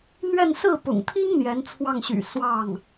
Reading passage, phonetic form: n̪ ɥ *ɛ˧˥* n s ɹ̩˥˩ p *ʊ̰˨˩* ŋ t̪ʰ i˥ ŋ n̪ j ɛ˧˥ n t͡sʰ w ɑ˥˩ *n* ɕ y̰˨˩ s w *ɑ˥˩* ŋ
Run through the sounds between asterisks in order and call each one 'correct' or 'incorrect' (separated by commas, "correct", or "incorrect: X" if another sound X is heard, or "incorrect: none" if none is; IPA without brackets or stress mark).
incorrect: ɛ˥˧, correct, incorrect: ŋ, correct